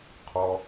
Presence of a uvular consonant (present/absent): present